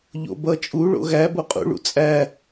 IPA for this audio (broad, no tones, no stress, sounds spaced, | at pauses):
ʎ o̰ b ʌ t͡ʃʼ u ɭ o̰ ɣ æ b o qʼ ṵ ɭ ṵ t͡sʼ æ